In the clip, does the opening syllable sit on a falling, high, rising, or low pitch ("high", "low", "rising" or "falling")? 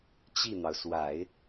falling